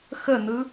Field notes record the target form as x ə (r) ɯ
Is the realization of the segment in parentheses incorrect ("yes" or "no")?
yes